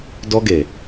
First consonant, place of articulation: alveolar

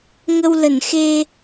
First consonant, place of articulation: velar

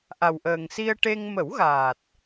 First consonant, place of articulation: glottal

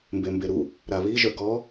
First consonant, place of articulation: labial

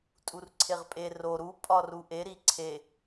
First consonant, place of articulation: alveolar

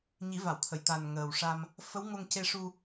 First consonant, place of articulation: palatal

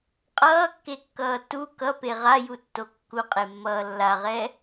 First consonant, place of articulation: uvular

